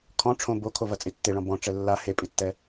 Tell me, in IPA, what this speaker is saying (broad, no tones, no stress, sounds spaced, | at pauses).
kʰ ɔ̃ ʈ͡ʂʰ õ b o kʰ o v ɐ t͡sʼ i tː e ɭ ɔ̃ b ɔ̃ ʈ͡ʂ ɛ lː a h e pʼ i tː ɛ